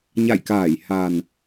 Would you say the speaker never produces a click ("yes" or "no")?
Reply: yes